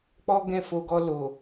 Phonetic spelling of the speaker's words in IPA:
k͡pɔ˦ɡɛ̃˦˨fo˧ɡɔ˧ lo˨

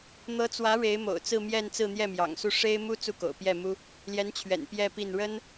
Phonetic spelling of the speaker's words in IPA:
n̪ɤ˧˥t͡swä˧˥ ɻe˧˥ɪ̯mo̰˨˩ʊ̯t͡sɹ̩˥˧mjɛ˥˧n t͡sɹ̩˥˧n̪jɛ˥˩mjɑ̰˨˩ŋsu˥˩ ʂe˥ɪ̯mu˥ t͡su˥˩ko̰˨˩ʊ̯pjɛ˥˩mu˥ | ljɛ˧˥nt͡ɕʰɥɛ̰˨˩n pjɛ˥˧pi˥˩n ɻə˥n

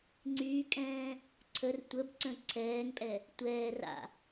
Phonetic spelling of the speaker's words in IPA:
ŋ͡ǀyːkʼɛ̃ː | ǀʰər tʷəb ǀə̃ǀʰɛːŋpʼɛ | tʷɛː ra̰

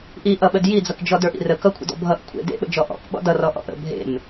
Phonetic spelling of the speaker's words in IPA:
ʔiʔʌɓəd jid͡zʌkd͡ʒɔ də˞ʔḭrə kʌkʷʰə̰dɔ̰ bʱʌʔ kʷʰḛ dḛɓə̰d͡ʒɔ ʔɔ̰kɓɔ̰ dʌrɔ ʔɔ̰ʔə̰ bʱḛm

